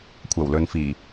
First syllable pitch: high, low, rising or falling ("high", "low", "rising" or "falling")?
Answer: low